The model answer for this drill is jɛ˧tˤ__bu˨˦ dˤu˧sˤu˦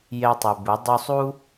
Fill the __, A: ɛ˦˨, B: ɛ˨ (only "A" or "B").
B